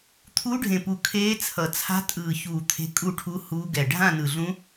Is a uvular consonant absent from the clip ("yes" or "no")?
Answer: yes